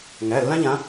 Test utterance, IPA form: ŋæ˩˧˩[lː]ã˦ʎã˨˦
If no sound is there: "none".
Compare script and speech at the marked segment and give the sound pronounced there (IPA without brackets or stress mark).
lː